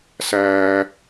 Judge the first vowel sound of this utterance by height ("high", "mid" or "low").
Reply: low